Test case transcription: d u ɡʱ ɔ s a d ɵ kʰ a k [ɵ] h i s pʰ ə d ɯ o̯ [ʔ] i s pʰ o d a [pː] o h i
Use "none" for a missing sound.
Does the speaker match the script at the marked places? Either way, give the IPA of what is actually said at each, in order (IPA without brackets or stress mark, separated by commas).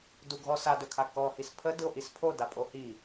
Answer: ɔ, ʔ, pʼ